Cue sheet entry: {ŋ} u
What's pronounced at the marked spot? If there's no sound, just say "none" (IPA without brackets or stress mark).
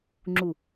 ŋ͡ǁ